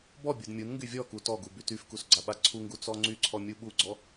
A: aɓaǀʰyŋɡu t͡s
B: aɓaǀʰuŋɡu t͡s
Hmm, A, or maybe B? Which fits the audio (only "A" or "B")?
B